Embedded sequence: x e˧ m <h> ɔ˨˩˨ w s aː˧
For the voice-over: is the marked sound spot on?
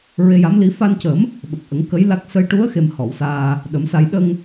yes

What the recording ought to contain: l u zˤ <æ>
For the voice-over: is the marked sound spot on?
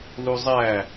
yes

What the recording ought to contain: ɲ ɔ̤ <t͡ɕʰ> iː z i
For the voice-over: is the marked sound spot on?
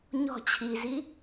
yes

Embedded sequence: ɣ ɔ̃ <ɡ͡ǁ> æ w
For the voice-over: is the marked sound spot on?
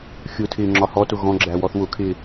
yes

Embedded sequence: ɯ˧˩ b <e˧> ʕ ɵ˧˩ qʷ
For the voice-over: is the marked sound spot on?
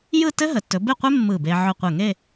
yes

